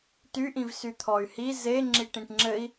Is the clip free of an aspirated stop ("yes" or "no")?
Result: no